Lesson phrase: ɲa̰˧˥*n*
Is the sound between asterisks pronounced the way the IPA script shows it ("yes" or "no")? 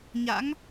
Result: no